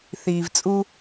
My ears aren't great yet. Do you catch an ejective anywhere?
yes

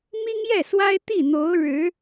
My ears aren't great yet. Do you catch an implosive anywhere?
no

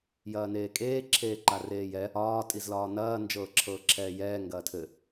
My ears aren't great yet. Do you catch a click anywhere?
yes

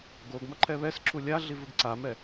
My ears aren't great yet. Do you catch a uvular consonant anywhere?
no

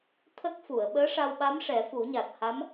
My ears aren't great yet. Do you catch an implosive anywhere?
yes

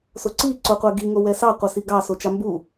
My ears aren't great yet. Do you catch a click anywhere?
yes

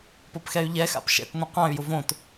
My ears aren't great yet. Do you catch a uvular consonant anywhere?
yes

